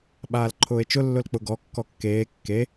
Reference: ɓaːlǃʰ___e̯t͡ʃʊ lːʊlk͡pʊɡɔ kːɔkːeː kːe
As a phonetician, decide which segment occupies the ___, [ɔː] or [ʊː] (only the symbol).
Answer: ʊː